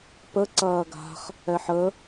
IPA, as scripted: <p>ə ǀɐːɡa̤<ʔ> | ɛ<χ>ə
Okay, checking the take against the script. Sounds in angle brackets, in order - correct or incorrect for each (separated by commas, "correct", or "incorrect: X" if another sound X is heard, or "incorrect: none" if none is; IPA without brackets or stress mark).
correct, incorrect: χ, incorrect: ħ